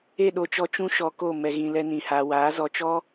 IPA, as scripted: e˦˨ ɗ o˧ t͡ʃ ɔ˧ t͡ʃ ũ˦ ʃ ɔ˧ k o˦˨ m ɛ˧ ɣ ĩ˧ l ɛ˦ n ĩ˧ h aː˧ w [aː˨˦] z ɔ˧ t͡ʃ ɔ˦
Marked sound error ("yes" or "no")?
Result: no